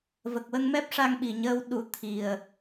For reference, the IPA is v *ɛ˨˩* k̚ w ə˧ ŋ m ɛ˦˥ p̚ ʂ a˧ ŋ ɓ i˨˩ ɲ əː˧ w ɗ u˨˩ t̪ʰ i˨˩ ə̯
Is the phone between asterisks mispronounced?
yes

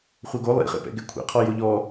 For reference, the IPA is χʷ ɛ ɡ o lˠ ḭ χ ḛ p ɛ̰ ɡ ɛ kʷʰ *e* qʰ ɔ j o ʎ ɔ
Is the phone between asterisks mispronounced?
yes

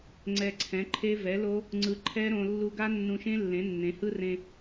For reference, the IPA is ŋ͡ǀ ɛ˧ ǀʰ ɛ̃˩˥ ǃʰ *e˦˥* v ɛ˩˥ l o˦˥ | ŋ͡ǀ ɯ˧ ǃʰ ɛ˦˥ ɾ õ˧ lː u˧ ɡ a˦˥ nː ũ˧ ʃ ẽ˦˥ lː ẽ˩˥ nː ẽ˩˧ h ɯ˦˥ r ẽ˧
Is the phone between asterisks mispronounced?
no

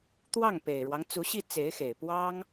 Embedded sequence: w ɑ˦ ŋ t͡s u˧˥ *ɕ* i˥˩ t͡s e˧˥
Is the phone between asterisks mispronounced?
no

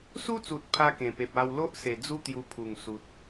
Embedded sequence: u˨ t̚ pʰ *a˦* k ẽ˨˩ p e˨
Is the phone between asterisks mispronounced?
no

